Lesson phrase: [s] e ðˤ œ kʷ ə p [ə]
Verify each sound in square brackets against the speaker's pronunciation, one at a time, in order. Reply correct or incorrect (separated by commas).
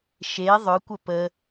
incorrect, correct